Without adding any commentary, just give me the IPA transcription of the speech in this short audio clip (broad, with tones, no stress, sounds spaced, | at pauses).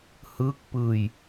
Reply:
h ɯː˦˥ k̚ p ɯː˧ j